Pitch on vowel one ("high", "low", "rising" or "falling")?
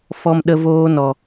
low